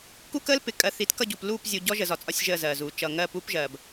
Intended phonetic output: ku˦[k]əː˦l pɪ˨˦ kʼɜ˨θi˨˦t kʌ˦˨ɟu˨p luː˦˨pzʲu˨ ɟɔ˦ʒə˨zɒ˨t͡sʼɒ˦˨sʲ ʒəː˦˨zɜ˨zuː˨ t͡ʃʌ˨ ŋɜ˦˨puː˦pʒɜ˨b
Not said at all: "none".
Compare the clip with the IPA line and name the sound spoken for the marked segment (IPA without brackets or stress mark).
k